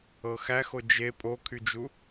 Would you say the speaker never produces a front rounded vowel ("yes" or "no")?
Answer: no